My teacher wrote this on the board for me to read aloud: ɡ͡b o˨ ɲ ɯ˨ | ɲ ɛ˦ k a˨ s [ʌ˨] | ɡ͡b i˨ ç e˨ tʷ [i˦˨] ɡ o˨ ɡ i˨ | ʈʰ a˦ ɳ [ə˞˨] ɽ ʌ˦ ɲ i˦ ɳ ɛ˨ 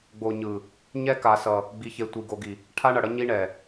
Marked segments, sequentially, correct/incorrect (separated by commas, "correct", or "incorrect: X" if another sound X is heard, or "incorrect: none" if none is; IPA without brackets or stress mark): correct, incorrect: i˨, incorrect: ʌ˨